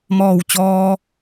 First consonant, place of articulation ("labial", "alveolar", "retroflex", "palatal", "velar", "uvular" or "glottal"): labial